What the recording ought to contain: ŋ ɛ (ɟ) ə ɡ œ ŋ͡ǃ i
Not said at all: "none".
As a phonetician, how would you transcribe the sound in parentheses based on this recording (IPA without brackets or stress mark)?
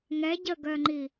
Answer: ɟ